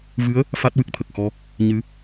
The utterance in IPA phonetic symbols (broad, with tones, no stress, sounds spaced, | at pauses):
v ɨ˧˥ ə̯ | f a˦˥ t̚ w ɨ˦˥ k̚ t̪ʰ ə˨˩ k̚ x ɔ˧ | ɲ ɨ˧˥